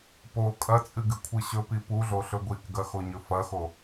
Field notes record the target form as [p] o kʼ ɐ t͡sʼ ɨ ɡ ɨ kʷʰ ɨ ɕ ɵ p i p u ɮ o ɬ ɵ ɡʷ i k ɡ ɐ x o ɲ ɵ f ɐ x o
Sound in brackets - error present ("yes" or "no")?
no